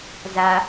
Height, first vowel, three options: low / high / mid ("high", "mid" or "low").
low